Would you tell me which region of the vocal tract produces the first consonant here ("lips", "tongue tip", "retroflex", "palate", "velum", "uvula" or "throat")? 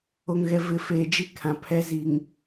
velum